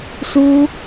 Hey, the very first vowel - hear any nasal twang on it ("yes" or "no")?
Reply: no